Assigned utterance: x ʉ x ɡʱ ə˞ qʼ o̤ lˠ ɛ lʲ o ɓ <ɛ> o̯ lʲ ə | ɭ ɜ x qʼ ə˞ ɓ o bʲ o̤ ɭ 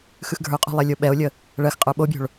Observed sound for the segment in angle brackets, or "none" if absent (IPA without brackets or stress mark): ɛ